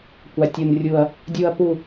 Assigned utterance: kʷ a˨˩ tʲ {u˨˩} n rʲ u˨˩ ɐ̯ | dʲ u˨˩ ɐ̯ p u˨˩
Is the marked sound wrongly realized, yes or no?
no